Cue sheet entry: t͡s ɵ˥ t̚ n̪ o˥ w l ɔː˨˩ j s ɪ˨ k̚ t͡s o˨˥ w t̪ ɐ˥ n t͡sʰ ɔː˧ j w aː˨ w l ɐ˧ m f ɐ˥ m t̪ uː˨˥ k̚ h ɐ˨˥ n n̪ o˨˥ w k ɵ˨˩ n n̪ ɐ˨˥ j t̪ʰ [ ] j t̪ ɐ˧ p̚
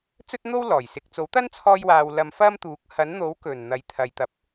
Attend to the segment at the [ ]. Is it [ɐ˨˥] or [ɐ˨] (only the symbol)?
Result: ɐ˨